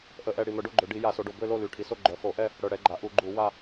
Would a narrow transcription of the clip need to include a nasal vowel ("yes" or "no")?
no